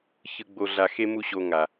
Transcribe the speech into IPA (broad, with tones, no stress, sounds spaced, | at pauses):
ç ɯ˧ ɡ͡b o˧ ɮ a˧ x e˦ m u˦ ɕ o˧ ŋ a˨